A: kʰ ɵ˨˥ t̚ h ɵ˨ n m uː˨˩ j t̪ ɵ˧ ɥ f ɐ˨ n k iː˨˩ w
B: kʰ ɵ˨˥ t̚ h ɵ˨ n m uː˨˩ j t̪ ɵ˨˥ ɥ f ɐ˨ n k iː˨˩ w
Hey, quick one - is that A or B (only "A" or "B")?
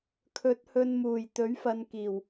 B